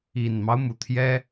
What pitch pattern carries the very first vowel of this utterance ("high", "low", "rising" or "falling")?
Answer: low